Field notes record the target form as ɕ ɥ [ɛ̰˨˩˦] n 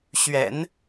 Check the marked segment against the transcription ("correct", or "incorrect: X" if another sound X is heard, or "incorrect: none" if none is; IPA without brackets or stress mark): correct